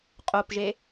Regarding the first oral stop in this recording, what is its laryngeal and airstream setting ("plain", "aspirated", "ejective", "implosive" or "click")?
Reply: ejective